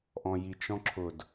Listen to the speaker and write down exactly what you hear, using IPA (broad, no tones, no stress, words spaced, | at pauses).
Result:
ʔɔ̃jit͡ʃɔ̃ ǁʰʊd